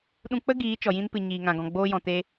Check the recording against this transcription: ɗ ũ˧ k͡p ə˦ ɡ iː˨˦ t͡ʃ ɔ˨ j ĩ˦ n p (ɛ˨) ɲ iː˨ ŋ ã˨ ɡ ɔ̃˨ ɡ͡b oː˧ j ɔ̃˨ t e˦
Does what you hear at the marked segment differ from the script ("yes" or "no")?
yes